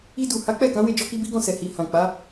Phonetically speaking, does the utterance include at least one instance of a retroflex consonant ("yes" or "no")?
no